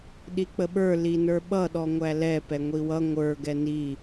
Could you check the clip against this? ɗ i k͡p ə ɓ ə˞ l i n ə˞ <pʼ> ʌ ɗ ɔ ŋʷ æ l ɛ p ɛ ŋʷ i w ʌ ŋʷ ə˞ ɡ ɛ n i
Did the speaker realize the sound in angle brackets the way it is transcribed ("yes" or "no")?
no